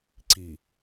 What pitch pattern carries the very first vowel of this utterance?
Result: low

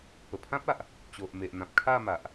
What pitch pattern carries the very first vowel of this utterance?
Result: low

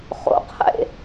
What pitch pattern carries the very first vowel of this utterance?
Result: low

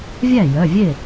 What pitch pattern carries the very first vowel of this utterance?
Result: falling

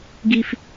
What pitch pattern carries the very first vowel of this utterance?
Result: high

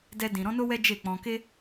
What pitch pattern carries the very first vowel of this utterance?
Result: high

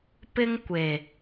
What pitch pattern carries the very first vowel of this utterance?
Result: high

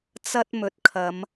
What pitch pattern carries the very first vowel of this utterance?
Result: high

